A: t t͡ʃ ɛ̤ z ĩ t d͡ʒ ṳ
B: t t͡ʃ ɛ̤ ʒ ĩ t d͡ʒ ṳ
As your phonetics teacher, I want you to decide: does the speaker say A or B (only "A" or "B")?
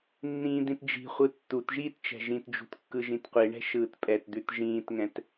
B